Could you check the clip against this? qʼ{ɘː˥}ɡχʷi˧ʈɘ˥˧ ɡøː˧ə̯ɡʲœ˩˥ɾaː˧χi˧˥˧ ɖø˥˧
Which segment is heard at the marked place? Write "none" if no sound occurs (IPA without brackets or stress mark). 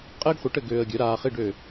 ɘː˥